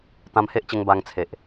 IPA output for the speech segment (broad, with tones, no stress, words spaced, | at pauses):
t̪ã˧mhe˦ʔt͡ɕə˧ŋ ba˧ŋt͡sʰe˨ʔ